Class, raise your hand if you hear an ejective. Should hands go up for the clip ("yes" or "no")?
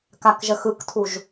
no